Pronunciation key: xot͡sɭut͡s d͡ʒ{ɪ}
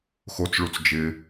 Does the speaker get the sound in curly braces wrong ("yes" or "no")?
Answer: no